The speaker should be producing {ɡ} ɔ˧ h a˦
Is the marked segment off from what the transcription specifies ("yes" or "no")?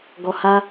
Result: no